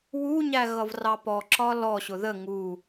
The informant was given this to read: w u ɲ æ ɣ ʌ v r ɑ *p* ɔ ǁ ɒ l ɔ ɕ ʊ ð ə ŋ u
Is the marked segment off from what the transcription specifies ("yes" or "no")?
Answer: no